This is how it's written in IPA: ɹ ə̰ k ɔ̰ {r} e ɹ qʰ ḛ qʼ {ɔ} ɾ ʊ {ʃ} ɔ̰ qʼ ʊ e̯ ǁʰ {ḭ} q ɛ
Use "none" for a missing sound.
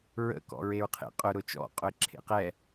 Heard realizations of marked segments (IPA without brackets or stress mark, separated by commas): ɹ, ʊ, t͡ʃ, ḛ